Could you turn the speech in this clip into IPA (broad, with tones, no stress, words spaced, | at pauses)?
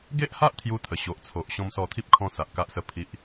ɡe˦ʔha˦ʔ t̪ʰju˦t̪ʰə˨˩ɕo˨ʔt͡sʰo˨ʔ ɕɔ̃˧msɔ˧t̪ʰi˦p̚kʰɔ̃˧ sa˨ʔka˦ʔsə˦ pʰi˦ʔ